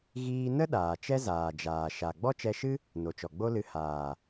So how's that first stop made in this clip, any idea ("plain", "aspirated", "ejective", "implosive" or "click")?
implosive